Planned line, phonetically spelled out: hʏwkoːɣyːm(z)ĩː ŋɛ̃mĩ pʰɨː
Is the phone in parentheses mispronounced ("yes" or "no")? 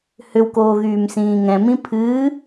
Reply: yes